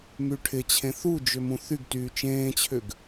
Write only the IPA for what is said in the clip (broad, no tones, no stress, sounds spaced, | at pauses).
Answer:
m y ʈʰ ɪ t͡ɕʰ ẽ θ u d͡ʒ ʏ m ũ θ y ɡ t yː t͡ʃ ẽː t͡ɕʰ ʏ ɡ